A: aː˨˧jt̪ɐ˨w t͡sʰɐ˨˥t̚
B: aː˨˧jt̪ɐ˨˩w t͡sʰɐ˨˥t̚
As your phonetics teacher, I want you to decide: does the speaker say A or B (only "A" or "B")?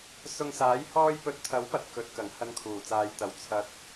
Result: A